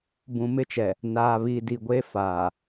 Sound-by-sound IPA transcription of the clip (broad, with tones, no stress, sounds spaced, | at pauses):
b ũ˨ m ɪ˦ t͡ʃ ɛ˨ | n aː˨ β i˨ d i˨ ɡʷ e˦ f aː˨